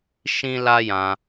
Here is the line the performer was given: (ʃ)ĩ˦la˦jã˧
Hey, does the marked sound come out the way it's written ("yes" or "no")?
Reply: yes